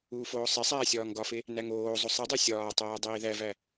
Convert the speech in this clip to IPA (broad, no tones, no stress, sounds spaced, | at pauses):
uː f oː sˤ e sˤ æː sʲ ɒː ŋ ɡ ɒ f e | n æ ŋ oː zˤ o sˤ i dˤ o sʲ ɒː tˤ æː dˤ iː ð æ v æ